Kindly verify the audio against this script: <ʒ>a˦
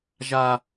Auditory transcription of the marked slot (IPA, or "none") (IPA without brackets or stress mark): ʒ